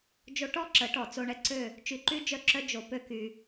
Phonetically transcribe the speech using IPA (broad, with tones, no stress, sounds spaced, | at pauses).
d͡ʒ o˧ ʈ ɔ˦ ǁ ə˨˦ ʈ ɔ˨ t͡s o˧ ɳ ɛ˦ ǀ ø˦˨ | t͡ʃ y˧ ǃ y˦ d͡ʒ œ˦˨ ǁ œ˦ d͡ʒ o˧ p ø˦ k y˧